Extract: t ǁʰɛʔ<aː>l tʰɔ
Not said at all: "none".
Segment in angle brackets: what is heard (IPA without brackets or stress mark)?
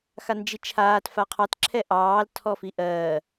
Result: ɑː